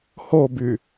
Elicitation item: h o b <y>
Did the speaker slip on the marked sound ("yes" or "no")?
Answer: no